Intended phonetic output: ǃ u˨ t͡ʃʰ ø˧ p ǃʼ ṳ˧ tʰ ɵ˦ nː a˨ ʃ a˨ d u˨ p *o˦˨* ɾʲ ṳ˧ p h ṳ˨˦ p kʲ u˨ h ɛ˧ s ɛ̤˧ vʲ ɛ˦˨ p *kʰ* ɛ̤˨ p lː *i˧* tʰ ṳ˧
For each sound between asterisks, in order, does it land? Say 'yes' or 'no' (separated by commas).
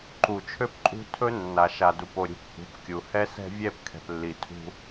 no, yes, no